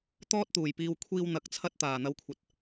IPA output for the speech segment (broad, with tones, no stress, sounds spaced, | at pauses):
t̪ ɔː˥ t̚ t̪ uː˨˩ j p iː˧ w kʷʰ iː˧ w n̪ ɐ˨ k̚ t͡sʰ ɐ˥ t̚ t̪ aː˨˩ n̪ ɐ˧ w kʷʰ ɐ˨ t̚